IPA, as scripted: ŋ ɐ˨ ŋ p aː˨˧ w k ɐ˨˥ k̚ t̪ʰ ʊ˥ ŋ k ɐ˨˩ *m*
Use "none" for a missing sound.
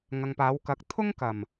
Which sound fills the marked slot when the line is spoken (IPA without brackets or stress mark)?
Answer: m